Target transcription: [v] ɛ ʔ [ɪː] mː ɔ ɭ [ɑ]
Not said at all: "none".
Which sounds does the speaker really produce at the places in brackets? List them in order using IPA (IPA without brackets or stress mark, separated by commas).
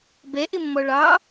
b, ɪ, ɑ